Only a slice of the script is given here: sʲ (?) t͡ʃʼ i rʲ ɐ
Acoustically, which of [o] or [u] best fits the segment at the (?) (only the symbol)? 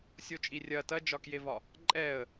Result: o